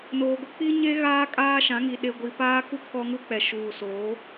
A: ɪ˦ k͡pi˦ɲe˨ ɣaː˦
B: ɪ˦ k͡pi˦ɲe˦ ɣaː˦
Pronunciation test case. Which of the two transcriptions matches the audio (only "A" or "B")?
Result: B